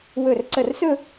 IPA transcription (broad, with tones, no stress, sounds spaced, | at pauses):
w ɵ˧˩ r ǀ ə˧˩ r s ɵ˥˧